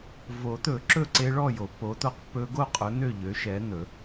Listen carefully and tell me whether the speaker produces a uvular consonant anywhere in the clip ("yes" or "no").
yes